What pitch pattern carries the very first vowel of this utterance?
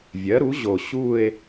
rising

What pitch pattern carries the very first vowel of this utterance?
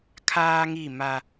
high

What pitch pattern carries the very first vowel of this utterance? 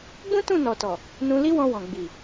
high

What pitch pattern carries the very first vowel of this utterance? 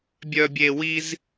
high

